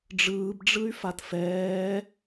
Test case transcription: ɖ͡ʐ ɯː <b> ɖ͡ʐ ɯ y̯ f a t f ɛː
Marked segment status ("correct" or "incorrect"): correct